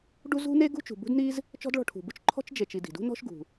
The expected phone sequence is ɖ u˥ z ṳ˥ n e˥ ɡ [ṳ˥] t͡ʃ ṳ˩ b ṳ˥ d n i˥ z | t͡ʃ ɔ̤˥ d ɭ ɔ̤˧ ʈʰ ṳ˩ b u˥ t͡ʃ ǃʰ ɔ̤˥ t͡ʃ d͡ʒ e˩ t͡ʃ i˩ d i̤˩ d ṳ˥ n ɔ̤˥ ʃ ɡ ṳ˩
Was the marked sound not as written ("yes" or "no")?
no